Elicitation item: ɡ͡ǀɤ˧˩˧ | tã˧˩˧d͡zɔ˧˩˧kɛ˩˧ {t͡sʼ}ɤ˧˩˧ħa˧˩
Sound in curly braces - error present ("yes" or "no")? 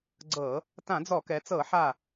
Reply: yes